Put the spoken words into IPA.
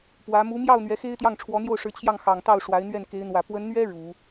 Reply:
p w ä˧˥ m u˧˥ m j ɑ˥˩ ʊ̯ n̪ ɥ ɛ˧˥ x e˥ ɪ̯ t̪ j ɑ˥˩ ŋ ʈ͡ʂʰ w ɔ˧˥ n̪ j o˥˩ ʊ̯ ʂ ɻ̩˧˥ t͡ɕʰ j ɑ˥˩ ŋ x ɑ˨˩ ŋ t̪ ɑ˥˩ ʊ̯ ʂ w a˧˥ ɪ̯ n̪ ɥ ɛ˥˩ n k e˧˥ ɪ̯ n̪ w ä˨˩ p w ə˧˥ n n̪ ɥ ɛ˥ ɻ u˨˩˦

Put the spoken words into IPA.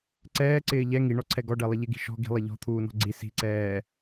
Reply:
ǀ ɛː ǀ ɪː ʎ ɛ ŋ i ɳ ɔ ǀʰ ɛ ɡ ɔ ɖ ɛ lˠ ɪ ʎ ɪ ɡ i̤ ʃ ɔ̤ ɡ i̤ lˠ ɪ ʎ ɔ̤ t̪ʰ uː n ɔ̤ ɡ͡ǀ i s i̤ ǀ ɛː

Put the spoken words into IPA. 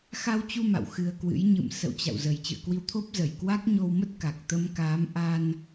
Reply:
x a˧ w t͡ɕ u˧ m a̰˧˨ w x ɨ˧ ə̯ k w ɨ̰˧˥ j ɲ ɨ̰˧˨ m s ə̰˧˨ w t͡ɕ a̰˧˨ w z ə˨˩ j t͡ɕ ɨ̰˧˨ ə̯ k w i˧ w t̪ʰ o˦˥ p̚ z ə˧˩ j k w a˦˥ k̚ ɲ o˧ w m ə˦˥ t̚ k a˨˩ k̚ t̪ ə˧ m k aː˨˦ m ʔ a˧ n

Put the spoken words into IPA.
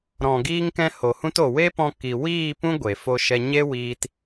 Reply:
ɾ ɔ̃˨ ɡ iː˧ ŋ k ɛ̃˧ h o˨ h ũ˧ t o˨ w e˦ p ɔ̃˧ k i˨ w iː˦˨ p ũ˦ ɡʷ e˨ f o˧ ʃ ɛ˧ ɲ e˦ w iː˧ t

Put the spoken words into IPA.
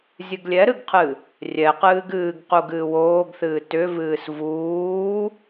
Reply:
zʲ ɨ ɡ lʲ ɛ ɾ ɨ ɡ qʰ ɨ | rʲ ɛ q ɨː ɡ ɨː ɡ q u ɡ ɨː w oː ɡ θ ɨː t ʏ v ɨː s v uː

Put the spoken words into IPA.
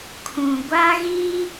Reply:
kʰ ũ˨ ɡʷ a˦ ɣ i˦

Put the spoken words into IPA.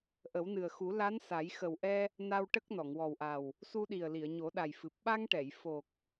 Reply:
ʔ ə˨˩˦ w n ɨ˨˩ ə̯ x u˨˩˦ l a˧˥ n s a˨˩˦ j x ə˨˩ w ʔ ɛ˧ | n a˧ w ʈ ə˦˥ k̚ n ɔ˨˩˨ ŋ w ɔ˨˩ w ʔ a˨˩ w | s u˧ ɗ i˨˩ ə̯ l i˨˩˨ ə̯ ɲ o˨˩˦ ɗ a˨˩ j f ɨ˨˩ p̚ ɓ a˧ ŋ ʈ ɛ˨˩˨ j f o˨˩ k̚

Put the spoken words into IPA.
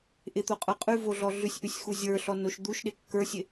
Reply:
ʔ ɪ t̪ o qʼ ə˞ qʼ ʉ v o ɮ ɔ ɮ ʉ sʲ ʔ ʉ sʲ x u zʲ ə˞ ɬ ɔ n o ʃ d̪ u ʃ ɗ ɪ kː ə˞ sʲ ɪ

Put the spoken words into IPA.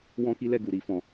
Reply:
w ɔ̃˦ k i˦ l ɛ˦˨ ɡ u˧ ɾ i˦ f ɔ̃˧

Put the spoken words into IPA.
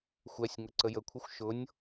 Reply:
xʷ ɛ sʲ ŋ ʊ ǀ ə j ə kʷʰ ɛ xʷ ʃ ʊ nʲ

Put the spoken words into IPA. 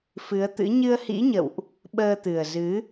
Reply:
f ɨ˨˦ ə̯ t̪ ɨ̰˧˥ ɲ ɨ˧ ə̯ h ḭ˧˥ ɲ ə̰˧˨ w ʔ | ɓ əː˧ t̪ ɨ˨˩ ə̯ z ɨ˨˦

